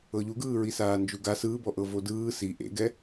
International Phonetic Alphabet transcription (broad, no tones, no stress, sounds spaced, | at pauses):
ɤ ʎ u ɡ ɯː ɹ i s aː n d͡ʒ u ɡ a s ɯː b ɔ ʔ ɤ v o d ɯː s i ʔ ḛ ɡ ɛ